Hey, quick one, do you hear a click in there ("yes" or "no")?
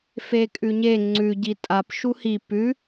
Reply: yes